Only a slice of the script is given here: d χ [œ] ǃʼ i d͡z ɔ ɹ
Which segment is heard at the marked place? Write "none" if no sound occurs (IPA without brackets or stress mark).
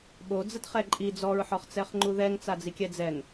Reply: ɛ